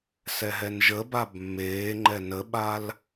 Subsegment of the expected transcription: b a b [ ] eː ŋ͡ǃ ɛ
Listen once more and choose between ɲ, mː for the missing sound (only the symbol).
mː